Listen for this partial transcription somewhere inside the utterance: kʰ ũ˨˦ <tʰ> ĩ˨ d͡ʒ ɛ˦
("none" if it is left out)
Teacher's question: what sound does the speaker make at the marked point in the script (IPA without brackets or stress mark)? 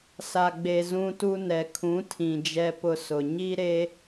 tʰ